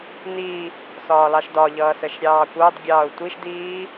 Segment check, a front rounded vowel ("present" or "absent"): absent